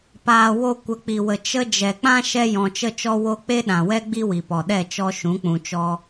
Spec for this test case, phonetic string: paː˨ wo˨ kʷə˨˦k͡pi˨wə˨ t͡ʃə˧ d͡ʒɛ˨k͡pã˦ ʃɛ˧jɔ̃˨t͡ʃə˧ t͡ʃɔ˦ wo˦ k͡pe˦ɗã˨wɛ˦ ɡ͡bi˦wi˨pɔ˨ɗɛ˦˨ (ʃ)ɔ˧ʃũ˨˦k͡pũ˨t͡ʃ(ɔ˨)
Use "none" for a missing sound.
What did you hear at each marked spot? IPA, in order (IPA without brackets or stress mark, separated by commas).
t͡ʃ, ɔ˧